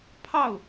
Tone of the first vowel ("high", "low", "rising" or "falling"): falling